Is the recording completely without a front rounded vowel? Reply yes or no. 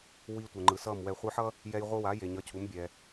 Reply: yes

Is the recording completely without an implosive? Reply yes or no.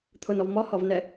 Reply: yes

